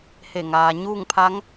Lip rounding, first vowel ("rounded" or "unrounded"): unrounded